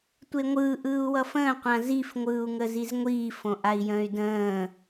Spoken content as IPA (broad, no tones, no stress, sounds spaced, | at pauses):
tʷ e ŋʷ ɯː ʔ ɯː u̯ w ʌ f ə̃ː qʷ ã z i f ŋʷ ɯː u̯ ŋ ə z i z ŋʷ iː f õ ʔ a i̯ j ə̃ː y̯ d ə̃ː